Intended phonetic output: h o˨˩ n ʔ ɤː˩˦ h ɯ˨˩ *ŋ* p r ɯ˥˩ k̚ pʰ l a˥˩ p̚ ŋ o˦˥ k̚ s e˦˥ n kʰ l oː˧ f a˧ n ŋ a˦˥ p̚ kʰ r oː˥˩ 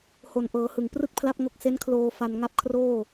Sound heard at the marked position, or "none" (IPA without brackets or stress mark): ŋ